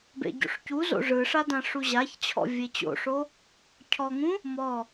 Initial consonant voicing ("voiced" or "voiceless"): voiced